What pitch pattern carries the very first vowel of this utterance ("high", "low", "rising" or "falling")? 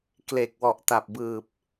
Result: low